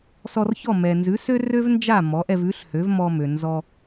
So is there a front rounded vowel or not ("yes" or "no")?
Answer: yes